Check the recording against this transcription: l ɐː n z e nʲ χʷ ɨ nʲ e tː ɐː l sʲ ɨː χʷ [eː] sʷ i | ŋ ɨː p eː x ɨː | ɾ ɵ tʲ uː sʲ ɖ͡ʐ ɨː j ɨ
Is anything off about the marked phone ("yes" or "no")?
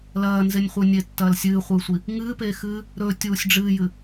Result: yes